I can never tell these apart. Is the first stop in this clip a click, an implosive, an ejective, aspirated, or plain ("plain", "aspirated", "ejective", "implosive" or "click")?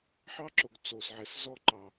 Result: click